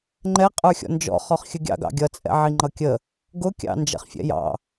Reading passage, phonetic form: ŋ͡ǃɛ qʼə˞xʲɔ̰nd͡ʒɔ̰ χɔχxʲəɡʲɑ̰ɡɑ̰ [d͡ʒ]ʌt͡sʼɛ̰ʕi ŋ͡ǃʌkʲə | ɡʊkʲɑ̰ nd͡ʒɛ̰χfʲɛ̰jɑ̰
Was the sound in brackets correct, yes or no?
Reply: no